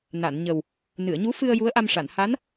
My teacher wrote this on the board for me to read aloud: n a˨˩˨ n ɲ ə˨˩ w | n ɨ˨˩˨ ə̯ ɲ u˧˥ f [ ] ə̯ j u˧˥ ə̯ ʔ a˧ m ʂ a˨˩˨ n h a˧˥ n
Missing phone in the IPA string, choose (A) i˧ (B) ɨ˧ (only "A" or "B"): B